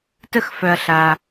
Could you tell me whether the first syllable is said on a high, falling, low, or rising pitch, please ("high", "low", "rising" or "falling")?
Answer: falling